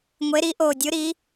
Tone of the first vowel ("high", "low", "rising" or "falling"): rising